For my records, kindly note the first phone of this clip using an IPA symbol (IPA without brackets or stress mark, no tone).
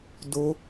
d